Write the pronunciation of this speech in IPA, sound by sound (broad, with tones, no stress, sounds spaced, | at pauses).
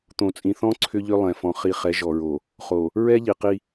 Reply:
t̪ õ˨ t͡sʼ ĩ˨ θ ɔ̃˦ ǀʰ ʏ˦ ʎ ʏ˦ lˠ ɛ̃˨ f ɔ̃˨ χ i˨˦ χ ɛ˨˦ ʒ ɔ˨ ɹ o˨ | χ o˨ | ɹ ɛ˦ ʎ i˨ q i˦